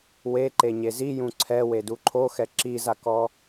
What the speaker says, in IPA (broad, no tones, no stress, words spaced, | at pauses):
weǃe ɲezijũ ǀʰɛ weduǃʰoxɛ ǁizakɔ